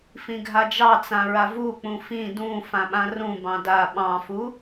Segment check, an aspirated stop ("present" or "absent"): absent